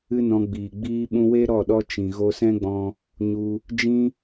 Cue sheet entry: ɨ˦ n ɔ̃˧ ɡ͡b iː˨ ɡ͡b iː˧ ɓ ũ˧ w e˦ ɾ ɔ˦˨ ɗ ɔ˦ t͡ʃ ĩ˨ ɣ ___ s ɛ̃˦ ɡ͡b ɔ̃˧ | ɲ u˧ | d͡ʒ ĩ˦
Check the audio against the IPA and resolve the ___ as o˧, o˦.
o˧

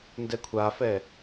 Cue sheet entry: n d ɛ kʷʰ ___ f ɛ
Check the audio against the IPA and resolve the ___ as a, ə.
a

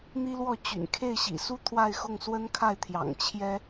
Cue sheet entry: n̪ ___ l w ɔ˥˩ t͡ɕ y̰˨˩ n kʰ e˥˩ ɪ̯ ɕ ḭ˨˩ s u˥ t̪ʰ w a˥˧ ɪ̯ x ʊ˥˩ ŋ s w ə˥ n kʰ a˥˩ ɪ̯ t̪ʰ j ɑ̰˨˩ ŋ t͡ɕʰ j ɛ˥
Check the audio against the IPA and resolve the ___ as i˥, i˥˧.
i˥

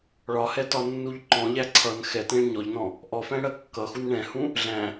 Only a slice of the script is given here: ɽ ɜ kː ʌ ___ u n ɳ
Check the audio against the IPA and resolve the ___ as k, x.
x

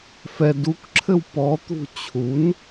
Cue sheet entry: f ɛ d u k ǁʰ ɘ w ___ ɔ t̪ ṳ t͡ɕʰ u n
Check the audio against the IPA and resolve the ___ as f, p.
p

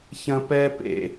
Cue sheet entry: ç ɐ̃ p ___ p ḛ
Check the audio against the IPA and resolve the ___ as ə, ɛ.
ɛ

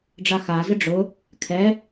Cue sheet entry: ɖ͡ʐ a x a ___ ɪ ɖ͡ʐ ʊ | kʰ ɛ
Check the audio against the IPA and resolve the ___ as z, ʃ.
z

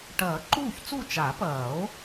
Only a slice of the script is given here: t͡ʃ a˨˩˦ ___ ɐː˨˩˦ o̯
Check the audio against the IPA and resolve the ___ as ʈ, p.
p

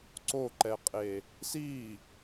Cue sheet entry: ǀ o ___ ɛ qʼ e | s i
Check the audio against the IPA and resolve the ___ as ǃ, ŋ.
ǃ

